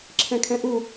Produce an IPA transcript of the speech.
ǁʰ ɛ̃ kʰ ɛ̃ ʔ u

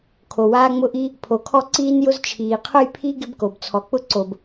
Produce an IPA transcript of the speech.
kʰ o˩ w aː˥ ŋ͡m ʊ˥ ʔ i˥ | pʰ o˩ kʰ ɔ˥ ǀ iː˥ n j ʊ˥ z t͡ʃʰ iː˩ qʰ ʊ˥ j pʰ i˥ ɡ ɪ˥ b k o˩ b t͡sʰ ɔ˩ k͡p ʊ˥ ǀ o˩ b

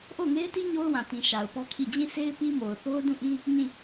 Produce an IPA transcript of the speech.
ʔ o˦˨ ʊ̯ ŋ e˦ ɪ̯ t i˦ ɲ o˦ ʊ̯ w ã˨ t ĩ˨ ʃ a˨ ʊ̯ p ɔ˦ kʰ i˦˨ d͡ʑ ĩ˦˨ sʰ e˦ ɪ̯ p i˦ m o˨ ʊ̯ θ o˦ ʊ̯ d ũ˦˨ ʔ ĩ˦ | ɲ ĩ˦˨

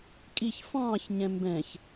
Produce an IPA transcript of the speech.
kʼ i ç f ɑ̃ː ç ɲ ɛ̃ m b ɛ̃ ç

